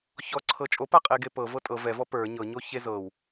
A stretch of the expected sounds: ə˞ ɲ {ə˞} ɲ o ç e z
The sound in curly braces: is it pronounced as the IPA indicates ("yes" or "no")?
no